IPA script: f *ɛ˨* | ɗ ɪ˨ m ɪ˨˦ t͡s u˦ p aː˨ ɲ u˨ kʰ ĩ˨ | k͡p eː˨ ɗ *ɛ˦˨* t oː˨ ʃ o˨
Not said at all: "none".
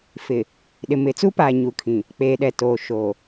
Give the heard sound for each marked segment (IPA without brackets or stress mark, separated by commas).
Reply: ɪ˨, ɛ˨